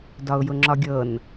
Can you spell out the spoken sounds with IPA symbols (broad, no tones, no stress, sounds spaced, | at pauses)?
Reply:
d ɒ ʊ̯ j ʊ ŋ͡ǁ ɒ ɡʲ ɤ n